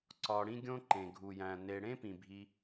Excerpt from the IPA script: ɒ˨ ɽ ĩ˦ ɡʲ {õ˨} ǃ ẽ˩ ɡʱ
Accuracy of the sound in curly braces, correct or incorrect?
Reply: incorrect